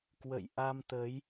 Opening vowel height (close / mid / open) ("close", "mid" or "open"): mid